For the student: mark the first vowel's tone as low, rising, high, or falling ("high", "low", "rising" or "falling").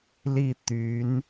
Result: falling